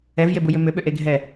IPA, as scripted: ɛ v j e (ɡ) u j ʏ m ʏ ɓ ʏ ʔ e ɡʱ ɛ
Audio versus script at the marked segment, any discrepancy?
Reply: yes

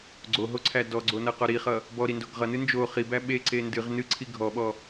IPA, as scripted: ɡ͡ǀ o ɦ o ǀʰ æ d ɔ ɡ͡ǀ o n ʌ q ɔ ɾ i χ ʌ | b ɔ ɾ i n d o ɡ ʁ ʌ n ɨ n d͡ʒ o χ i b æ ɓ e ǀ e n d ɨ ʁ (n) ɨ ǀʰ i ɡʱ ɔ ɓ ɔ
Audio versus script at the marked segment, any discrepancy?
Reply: no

